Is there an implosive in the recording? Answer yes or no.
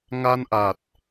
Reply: no